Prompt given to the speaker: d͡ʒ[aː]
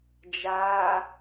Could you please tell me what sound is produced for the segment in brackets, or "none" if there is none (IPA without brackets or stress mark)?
aː